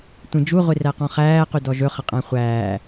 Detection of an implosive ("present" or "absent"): absent